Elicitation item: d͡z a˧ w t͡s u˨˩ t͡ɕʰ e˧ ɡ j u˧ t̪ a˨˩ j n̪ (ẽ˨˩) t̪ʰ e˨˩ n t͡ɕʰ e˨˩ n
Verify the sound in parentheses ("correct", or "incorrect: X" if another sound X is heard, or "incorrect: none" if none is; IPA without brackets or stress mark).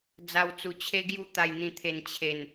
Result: incorrect: ĩ˨˩